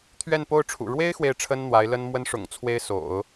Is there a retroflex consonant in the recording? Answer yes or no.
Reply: yes